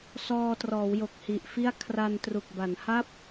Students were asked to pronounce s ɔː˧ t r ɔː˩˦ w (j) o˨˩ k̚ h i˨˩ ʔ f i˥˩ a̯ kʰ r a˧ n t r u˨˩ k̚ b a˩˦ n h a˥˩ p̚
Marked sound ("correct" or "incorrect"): correct